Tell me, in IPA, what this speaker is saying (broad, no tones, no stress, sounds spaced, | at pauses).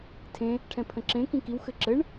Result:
tʰ ẽ | ʈʰ ɛ̃ pʰ ə̃ ǁ ẽ k ĩ k i w x ɘ ǁ ɘ ɳ